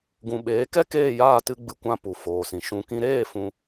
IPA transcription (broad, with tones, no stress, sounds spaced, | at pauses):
ɡ ũ˨ ɓ eː˨˦ k ɛ˦ k eː˦˨ j aː˦˨ t ɨ˦ ɡ͡b ɨ˧ kʷ ã˧ p u˨ f oː˨ s ĩ˨ ʃ ũ˧ k ĩ˦ ɾ eː˦˨ f ũ˦